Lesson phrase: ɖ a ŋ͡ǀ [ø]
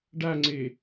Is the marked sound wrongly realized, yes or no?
yes